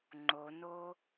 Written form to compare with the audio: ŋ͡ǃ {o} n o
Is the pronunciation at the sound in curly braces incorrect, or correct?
correct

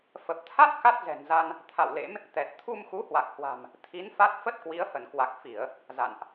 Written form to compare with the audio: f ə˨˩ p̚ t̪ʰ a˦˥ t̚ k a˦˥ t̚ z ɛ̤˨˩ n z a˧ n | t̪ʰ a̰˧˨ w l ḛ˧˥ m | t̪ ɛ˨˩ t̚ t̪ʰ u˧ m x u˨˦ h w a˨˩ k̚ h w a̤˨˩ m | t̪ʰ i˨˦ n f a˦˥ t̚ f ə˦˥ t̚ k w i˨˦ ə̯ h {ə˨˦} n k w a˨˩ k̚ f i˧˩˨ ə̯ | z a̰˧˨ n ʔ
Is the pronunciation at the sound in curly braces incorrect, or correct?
incorrect: ə˧˩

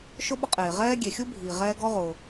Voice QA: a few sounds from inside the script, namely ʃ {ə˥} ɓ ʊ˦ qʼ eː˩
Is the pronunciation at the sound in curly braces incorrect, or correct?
incorrect: ʊ˥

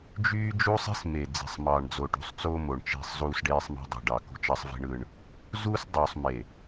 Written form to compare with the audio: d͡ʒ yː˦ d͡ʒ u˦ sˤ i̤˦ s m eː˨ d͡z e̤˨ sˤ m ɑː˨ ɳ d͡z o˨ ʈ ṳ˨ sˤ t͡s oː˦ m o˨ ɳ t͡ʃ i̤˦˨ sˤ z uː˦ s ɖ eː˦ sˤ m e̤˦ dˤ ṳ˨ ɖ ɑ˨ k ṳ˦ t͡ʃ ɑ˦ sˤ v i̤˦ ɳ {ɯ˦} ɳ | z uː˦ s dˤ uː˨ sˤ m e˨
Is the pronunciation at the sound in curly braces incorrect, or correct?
correct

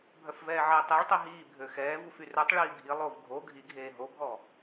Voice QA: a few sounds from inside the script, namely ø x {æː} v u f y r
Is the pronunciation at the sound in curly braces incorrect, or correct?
incorrect: ɛː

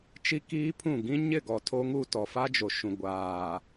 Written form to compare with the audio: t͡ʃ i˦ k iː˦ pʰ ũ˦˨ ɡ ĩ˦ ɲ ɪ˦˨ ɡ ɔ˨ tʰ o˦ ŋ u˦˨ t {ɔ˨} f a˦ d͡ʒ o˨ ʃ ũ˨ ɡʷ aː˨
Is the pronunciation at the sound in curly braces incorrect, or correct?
correct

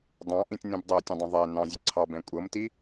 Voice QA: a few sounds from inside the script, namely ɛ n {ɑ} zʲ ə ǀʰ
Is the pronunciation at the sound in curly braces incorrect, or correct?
incorrect: ɑ̃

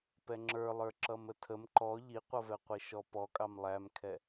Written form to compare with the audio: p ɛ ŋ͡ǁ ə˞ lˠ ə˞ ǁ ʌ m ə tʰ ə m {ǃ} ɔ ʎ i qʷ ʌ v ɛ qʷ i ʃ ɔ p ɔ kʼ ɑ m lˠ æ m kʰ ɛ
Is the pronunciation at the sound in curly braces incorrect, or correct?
correct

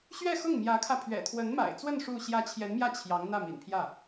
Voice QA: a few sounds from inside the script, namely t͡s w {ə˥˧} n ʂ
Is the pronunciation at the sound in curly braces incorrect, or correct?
correct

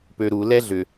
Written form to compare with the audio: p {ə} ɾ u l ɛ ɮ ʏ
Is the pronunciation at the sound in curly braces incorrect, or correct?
incorrect: ø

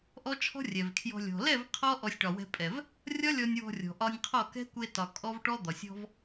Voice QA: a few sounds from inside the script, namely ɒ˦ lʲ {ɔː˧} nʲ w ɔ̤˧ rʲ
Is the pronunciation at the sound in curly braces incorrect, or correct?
incorrect: ɔ˧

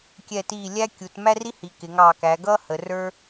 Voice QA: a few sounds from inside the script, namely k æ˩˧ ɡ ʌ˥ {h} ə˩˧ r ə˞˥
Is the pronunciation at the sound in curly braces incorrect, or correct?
correct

